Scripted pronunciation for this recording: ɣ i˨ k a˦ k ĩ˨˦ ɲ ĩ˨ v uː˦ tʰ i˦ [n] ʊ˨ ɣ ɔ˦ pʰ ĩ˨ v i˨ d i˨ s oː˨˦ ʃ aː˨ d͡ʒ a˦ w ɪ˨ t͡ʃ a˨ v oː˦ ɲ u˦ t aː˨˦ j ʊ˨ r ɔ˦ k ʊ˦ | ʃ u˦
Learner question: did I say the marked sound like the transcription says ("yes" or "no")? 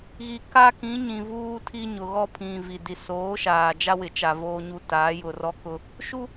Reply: no